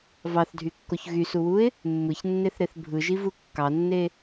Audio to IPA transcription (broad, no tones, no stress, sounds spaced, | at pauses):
v ɑ θ dʱ y kː o ç ɣ y s u w u ɪ̯ | mː ɯ ç nː e θ ɾ e θ bʱ ɯ ʒ i v u kː ɑ nː e